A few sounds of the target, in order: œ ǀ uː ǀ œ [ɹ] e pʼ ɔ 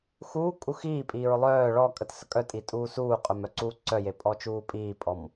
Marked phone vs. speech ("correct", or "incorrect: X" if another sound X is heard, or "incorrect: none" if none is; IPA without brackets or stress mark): incorrect: j